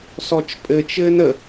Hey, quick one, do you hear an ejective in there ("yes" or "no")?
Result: yes